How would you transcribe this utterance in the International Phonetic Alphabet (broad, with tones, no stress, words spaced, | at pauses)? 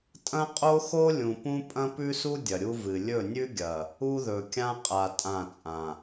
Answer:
tʼɐ̃˦qʼo˦xo˦ lʲũ˨pũ˦ pʼɐ̃˦pʉ˦su˦ dʲɐ˨ɾʲu˦vɨ˨ lʲɵ˦˨nʲʉ˦ɡʲɐ˨ | u˦ðɵ˨kʲã˦qʼa˨ tʼã˦˨t͡sʼã˨